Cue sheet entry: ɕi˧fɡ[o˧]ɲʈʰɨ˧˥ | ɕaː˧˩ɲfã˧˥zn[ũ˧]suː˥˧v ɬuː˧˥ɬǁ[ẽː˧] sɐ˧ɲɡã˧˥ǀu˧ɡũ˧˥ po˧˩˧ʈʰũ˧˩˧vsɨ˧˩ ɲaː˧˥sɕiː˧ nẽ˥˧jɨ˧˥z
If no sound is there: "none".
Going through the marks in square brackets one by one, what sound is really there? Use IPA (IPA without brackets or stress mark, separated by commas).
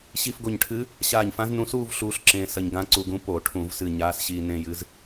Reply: o˧˩, ũ˧, ẽː˧